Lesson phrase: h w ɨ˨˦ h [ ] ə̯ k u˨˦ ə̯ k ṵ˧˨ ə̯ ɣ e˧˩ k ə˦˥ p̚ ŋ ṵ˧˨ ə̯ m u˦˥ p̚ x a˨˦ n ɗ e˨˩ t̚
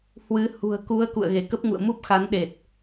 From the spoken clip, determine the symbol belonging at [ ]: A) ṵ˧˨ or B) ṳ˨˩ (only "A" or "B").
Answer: B